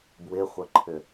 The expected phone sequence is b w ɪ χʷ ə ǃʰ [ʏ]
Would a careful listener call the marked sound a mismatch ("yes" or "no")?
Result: no